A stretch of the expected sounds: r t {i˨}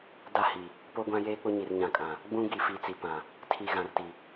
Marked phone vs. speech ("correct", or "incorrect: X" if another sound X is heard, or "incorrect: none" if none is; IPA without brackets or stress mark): correct